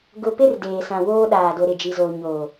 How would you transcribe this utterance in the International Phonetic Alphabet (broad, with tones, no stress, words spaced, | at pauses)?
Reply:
ɡʊ˨pɪ˦r deː˨sã˨ woː˦ɗaː˨ do˨ɾɪ˨d͡ʒi˨zoː˨ ɲo˨